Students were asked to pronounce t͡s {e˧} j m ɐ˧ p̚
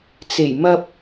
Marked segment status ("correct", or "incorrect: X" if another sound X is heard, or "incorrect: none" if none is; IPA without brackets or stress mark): incorrect: e˨˩